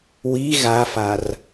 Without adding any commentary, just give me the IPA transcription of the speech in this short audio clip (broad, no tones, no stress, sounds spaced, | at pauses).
w i ɣ a f a r